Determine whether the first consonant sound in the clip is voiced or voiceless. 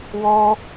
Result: voiced